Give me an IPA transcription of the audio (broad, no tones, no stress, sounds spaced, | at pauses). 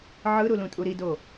ʕ ɯ ɾ u l ũ tʼ u ɾ i d o